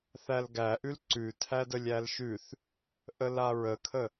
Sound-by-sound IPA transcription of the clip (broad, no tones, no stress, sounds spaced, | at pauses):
θ æ l ɡ æ ʔ ʉ l ǀ ʉ tʰ æ d ə lʲ æ l ʃ ʉ θ | ʔ ə l a ɹ ə kʰ ə